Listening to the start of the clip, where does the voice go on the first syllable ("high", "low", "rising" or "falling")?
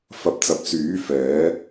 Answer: rising